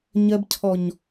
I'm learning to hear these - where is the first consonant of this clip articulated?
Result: palate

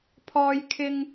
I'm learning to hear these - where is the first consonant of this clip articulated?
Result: lips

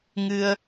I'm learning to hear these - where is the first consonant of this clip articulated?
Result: velum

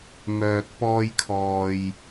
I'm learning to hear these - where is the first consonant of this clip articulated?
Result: lips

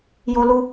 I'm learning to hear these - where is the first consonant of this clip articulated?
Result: palate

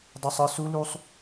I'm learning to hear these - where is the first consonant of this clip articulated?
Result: tongue tip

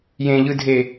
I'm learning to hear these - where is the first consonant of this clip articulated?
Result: palate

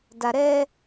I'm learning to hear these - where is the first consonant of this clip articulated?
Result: tongue tip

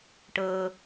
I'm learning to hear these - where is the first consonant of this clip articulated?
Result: retroflex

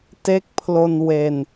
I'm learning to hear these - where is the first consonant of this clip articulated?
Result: tongue tip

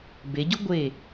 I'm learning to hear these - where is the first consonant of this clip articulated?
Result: lips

